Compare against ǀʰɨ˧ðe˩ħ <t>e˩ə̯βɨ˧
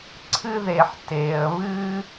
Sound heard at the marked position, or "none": t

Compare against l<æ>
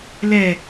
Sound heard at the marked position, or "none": ɛ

